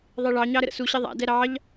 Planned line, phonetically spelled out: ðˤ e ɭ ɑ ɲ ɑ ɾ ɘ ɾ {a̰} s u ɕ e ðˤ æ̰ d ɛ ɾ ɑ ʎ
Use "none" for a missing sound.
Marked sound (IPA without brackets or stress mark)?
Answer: ə̰